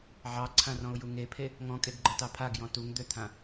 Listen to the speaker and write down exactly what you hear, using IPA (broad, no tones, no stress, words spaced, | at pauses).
ʕɑǀʰãrɔ̃ʊ̯ju ŋepʰe | ŋɔ̃kʼeɡɡ͡ǃətɑ pʰaɡjɔ̃ tuŋd̪øt̪ʰã